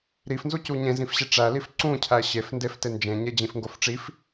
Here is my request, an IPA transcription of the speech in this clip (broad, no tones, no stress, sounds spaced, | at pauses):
ɾ i f n z u c u ɲ ẽ z ĩ f ɕ e ʈ͡ʂ æ l i f ǀ ũ cʰ æ ɕ e f n d e f t e n d͡ʒ ẽ ɲ e d͡ʑ ĩ f ŋ ɡ o f ʈ͡ʂ i f